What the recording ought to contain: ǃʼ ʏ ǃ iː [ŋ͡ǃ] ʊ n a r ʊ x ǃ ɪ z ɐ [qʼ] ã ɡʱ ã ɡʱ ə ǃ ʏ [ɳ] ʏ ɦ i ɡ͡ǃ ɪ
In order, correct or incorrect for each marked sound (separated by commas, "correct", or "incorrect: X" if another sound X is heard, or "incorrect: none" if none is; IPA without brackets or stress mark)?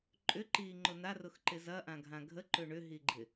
correct, incorrect: ʔ, correct